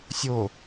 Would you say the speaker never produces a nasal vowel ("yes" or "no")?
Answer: yes